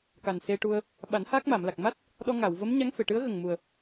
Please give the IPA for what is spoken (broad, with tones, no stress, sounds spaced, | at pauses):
k a˨˩ n s e˧ ʈ u˧ ə̯ | ɓ a˨˩˦ n h aː˦˥ k̚ m a˨˩˨ m l a˨˩ k̚ m a˦˥ t̚ | ɗ ɔ˧ ŋ a˨˩˨ w v ə˧˥ m ɲ a˧˥ ŋ f e˨˩˨ ʈ ɨ˧˥ ə̯ ɣ ə˨˩ ŋ m u˨˩ ə̯